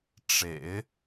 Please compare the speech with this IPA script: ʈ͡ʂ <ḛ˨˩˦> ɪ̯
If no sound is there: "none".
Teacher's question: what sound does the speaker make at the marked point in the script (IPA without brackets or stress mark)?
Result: ḛ˨˩˦